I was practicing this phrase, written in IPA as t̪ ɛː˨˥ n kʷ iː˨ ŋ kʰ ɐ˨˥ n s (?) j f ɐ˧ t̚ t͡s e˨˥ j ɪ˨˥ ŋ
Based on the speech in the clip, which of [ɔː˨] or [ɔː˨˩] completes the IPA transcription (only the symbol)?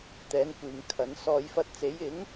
ɔː˨